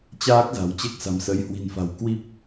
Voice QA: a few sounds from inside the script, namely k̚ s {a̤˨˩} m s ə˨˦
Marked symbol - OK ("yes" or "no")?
yes